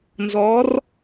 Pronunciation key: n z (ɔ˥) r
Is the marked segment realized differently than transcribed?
yes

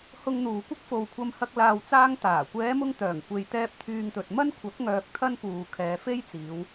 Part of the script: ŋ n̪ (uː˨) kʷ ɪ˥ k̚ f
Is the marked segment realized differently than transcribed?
no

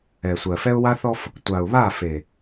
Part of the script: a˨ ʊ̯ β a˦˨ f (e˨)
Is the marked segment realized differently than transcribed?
no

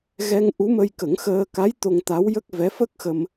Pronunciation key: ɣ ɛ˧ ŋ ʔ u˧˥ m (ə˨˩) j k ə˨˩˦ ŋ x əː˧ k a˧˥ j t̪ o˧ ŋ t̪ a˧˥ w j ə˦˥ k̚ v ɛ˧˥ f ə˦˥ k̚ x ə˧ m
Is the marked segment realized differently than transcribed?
yes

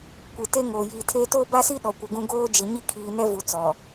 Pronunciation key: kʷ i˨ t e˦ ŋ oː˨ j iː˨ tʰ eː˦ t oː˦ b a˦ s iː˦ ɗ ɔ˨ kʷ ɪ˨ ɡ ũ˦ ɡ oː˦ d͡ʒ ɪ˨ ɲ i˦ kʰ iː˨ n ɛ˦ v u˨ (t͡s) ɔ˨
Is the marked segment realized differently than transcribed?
no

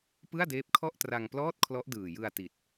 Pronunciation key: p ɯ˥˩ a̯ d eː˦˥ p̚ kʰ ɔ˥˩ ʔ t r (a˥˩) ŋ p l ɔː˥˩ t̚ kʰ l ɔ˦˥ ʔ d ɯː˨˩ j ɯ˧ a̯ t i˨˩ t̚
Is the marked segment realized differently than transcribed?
yes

